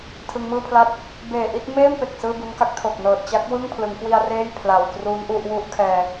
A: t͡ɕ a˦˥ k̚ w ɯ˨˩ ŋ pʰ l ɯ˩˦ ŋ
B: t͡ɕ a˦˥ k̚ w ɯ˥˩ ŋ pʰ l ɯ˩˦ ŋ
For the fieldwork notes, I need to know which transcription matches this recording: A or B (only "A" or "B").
B